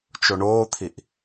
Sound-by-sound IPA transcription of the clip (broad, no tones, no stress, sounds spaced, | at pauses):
t͡ʃ o ɳ oː t̪ʰ i ʔ